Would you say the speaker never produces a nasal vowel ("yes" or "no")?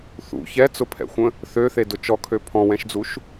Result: no